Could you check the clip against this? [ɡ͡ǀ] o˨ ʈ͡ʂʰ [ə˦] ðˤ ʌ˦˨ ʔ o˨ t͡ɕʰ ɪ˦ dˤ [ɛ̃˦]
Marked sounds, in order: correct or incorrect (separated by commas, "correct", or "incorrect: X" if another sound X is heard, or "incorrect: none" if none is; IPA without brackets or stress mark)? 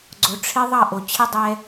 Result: correct, incorrect: ɪ˦, incorrect: ɛ˦